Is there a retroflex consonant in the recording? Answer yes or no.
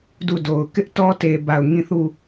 no